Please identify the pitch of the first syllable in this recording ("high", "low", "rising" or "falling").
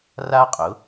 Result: high